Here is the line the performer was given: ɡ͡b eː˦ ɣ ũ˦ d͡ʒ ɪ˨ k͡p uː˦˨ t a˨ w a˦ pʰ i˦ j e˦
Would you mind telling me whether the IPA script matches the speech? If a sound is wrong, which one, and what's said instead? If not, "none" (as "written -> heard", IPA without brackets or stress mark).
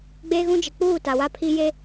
none